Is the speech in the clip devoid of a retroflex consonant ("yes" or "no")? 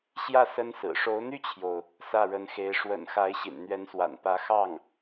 no